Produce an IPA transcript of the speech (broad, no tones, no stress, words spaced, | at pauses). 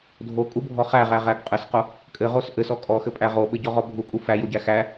dʱokʼubʱɔ χæʁæʁæɡ qʼɘsqo | kʼɘʁos ʔɘsɔ kʼɔxɘpʼæ ʁoɓɘɟɔʁɔ bʱukʼu fæjoɟæ xæ